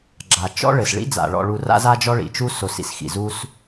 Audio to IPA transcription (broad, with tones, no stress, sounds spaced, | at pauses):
ɡ͡ǁ a˩ t͡ʃ ɔ̰˥ ɭ ɘ˩ s ɭ ḭ˥ d͡z a̰˩ ɭ ɔ̰˨ ɭ u˨ r a̰˥ z a˥ d͡ʒ ɔ˥ ɭ ḭ˩ t͡ʃ u˦ s o˨ s ḭ˨ s x ḭ˩ z u˦ s